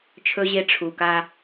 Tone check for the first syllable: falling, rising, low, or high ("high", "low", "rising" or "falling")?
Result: low